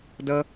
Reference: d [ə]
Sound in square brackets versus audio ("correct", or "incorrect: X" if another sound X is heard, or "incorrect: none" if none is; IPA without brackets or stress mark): correct